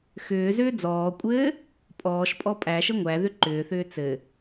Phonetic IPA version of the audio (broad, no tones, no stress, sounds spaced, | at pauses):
x ʏː z ʏː d͡z ɔː kʷʼ ɘː | pʼ ɔː ʃ pʼ ɔ pʼ æ ʃ ə ŋʷ æ ð ʏ ǃ ʏː θ ʏː t͡s ɘ